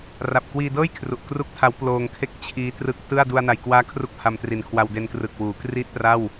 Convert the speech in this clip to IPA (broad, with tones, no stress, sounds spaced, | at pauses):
r a˨˩ p̚ k w iː˧ d ɤː˥˩ j kʰ r u˨˩ ʔ k r u˥˩ k̚ tʰ a˦˥ w p l oː˧ ŋ kʰ e˥˩ k̚ t͡ɕʰ iː˦˥ t r ɯ˦˥ k̚ t ɯ˥˩ a̯ d u˧ a̯ n a˨˩ j k w aː˦˥ kʰ r u˥˩ k̚ h a˧ m t r i˨˩ n kʰ w a˧ w d e˦˥ n k r ɯ˨˩ k̚ w uː˩˦ k r i˥˩ t̚ p r a˥˩ w